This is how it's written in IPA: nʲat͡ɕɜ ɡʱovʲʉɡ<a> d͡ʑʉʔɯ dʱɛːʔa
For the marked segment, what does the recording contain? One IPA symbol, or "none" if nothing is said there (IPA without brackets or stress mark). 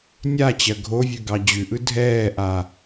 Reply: ɑ